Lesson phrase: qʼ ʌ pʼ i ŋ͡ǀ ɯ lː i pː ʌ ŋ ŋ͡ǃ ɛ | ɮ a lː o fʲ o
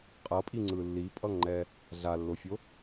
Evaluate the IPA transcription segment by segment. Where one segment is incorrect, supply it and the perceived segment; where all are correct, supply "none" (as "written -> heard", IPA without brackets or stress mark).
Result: pː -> pʼ